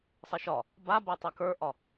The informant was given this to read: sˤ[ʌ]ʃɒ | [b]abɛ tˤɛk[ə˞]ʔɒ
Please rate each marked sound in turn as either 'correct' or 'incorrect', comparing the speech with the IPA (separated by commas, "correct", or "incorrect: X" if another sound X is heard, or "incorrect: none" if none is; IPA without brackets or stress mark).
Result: correct, correct, correct